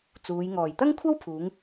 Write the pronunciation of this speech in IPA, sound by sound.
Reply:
t͡s uː˨˧ j ŋ ɔː˨˩ j t̪ ɐ˥ ŋ kʷʰ ɐ˥ w pʰ uː˨˧ ŋ

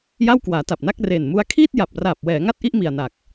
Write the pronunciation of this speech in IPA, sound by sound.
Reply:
j a˥˩ w k w aː˩˦ t a˨˩ p̚ n a˥˩ k̚ r eː˨˩ n m u˦˥ a̯ kʰ iː˥˩ t̚ j a˨˩ p̚ r aː˨˩ p̚ w ɛː˩˦ ŋ a˥˩ t̚ ʔ i˥˩ ʔ m i˨˩ a̯ n a˨˩ k̚

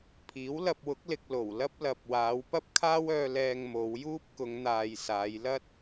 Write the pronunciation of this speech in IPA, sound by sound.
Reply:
pʰ iː˨˥ w l ɐ˧ p̚ w ʊ˨˥ k̚ l ɪ˨ k̚ l o˨˩ w l ɐ˥ p̚ l ɐ˨ p̚ w aː˨˧ w p ɐ˥ p̚ kʰ aː˥ w œː˧ l ɛː˧ ŋ m o˨˧ w j uː˥ p̚ k ʊ˨˧ ŋ n̪ aː˨ j s aː˨˧ j l ɐ˥ t̚

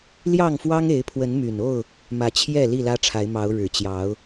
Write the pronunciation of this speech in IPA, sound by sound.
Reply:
l j ɑ˥˨ ŋ f w ɑ˦ ŋ e˨˦ ɪ̯ pʰ w ə˨˦ n m y˨˩ n o˥˨ ʊ̯ | m ä˨˦ t͡ɕʰ j ɛ˥˨ l i˥˨ l ä˦ ʈ͡ʂʰ a˨˦ ɪ̯ m ɑ˨˦ ʊ̯ ɻ ɻ̩˨˩ t͡ɕ j ɑ˨˦ ʊ̯

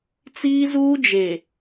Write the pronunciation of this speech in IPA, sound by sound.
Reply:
t͡s iː˦ z uː˦ d͡ʒ e˨

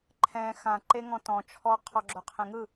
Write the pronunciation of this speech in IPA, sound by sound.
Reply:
ǃʰ ɛ̃ x ã ǃ e ŋ ɔ̃ t ɔ̃ t͡ʃʰ ɔ qʰ ɔ ɡ͡ǁ o qʰ ẽ ŋ ɯ

